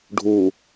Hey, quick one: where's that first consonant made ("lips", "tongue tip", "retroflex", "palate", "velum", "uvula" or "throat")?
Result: retroflex